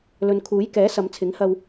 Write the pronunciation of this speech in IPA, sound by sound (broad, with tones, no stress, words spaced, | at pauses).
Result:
lɵ˨nkʰuː˨˥jkɛː˨˥ sɐ˨˧mt͡sʰɪ˨˥ŋhɐ˧w